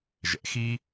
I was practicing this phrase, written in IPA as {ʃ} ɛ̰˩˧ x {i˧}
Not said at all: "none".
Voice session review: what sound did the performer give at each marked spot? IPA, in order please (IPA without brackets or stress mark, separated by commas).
ʒ, i˧